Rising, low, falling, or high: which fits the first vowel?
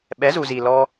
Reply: rising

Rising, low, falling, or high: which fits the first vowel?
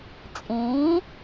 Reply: rising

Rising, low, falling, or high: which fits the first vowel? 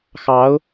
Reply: rising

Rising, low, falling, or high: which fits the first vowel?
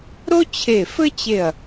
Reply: high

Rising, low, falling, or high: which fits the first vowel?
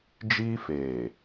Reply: high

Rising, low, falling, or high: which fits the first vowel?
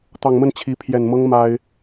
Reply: low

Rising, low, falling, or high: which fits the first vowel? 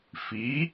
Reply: rising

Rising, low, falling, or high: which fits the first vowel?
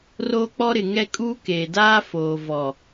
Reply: high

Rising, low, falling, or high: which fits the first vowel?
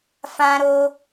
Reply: high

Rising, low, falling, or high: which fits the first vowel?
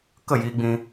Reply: falling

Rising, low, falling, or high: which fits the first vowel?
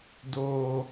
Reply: low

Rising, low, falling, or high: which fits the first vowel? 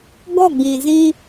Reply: falling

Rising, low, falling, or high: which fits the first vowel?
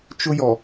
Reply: high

